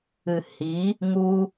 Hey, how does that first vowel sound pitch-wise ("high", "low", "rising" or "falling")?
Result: low